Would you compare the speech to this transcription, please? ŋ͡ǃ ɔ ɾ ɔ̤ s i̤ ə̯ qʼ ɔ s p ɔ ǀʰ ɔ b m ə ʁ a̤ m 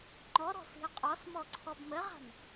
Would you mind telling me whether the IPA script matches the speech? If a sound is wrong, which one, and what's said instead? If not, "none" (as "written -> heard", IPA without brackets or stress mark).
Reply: p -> m